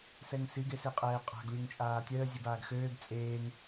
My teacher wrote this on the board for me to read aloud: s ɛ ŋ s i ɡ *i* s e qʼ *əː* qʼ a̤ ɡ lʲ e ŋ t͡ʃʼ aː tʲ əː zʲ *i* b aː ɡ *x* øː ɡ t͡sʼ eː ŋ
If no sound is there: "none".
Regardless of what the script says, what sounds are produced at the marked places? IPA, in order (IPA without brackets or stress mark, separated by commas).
e, ɛː, e, x